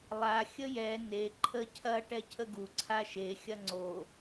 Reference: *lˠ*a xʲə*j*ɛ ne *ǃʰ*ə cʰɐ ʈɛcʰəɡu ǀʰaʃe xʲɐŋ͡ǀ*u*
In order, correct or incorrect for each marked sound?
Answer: correct, correct, correct, incorrect: o

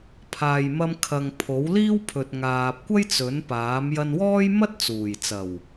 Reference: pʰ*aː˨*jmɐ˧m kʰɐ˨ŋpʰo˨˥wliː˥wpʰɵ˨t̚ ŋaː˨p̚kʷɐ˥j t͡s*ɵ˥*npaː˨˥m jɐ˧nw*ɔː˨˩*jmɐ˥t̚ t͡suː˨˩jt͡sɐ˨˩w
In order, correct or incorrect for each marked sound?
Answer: correct, incorrect: ɵ˨˥, incorrect: ɔː˥

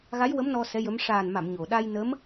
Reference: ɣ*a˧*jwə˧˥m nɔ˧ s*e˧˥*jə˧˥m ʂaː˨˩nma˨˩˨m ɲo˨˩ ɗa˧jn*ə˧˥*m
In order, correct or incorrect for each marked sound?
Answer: incorrect: a˧˥, incorrect: ɛ˧˥, correct

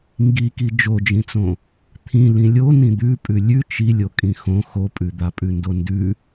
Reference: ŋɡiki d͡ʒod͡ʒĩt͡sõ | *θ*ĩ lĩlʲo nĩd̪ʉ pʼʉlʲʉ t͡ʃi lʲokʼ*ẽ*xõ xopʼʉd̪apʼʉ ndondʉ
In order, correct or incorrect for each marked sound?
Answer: incorrect: t̪ʰ, incorrect: ĩ

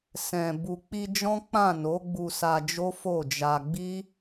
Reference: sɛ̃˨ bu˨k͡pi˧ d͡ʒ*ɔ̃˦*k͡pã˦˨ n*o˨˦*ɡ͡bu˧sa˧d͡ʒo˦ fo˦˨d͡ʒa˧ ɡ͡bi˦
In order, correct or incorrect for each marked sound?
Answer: correct, correct

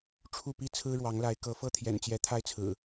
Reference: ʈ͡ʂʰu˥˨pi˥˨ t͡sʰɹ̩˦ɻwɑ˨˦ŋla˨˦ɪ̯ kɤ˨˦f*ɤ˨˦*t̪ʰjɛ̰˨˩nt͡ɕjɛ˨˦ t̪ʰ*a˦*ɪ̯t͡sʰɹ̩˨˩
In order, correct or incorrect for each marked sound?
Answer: incorrect: ɤ˥˨, correct

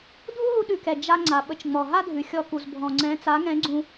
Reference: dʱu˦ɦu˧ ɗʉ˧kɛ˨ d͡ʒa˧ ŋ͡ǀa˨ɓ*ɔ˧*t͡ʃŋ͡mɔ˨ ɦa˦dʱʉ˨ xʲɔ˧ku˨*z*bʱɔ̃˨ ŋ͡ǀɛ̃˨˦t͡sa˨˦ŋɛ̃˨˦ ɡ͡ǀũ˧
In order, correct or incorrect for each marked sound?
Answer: incorrect: ə˧, correct

